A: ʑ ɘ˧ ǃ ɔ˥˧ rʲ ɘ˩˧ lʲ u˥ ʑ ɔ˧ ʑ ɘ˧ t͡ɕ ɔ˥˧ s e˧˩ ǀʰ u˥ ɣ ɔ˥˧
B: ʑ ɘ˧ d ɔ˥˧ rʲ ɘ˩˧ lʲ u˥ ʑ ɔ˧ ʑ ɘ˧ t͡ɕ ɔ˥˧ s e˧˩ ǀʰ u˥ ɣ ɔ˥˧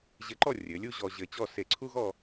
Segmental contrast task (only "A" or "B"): A